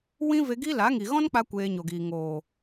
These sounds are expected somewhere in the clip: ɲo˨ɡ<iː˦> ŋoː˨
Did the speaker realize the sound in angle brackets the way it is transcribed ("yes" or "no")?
no